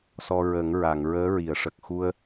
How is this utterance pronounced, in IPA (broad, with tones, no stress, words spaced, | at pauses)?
sɔ˧ɹə˨˩˦ŋɹa˨˩˨ŋ ɹəː˧˥ɹi˨˩˨ə̯ʂə˨˩k̚ xu˧ə̯